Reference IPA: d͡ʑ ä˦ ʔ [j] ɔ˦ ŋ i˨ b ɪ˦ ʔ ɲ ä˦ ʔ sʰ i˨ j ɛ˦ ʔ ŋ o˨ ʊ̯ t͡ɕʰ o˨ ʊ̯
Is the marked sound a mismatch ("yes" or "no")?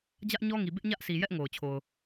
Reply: yes